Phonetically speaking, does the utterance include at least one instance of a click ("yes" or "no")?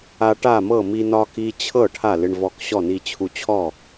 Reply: no